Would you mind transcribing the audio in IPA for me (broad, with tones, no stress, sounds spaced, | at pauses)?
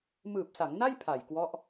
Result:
m ɯː˨˩ p̚ s a˩˦ ŋ n a˥˩ j pʰ a˨˩ j k w ɔ˦˥ ʔ